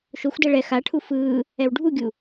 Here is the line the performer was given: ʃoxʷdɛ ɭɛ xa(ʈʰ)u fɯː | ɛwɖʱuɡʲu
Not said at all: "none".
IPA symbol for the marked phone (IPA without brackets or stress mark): ʈʰ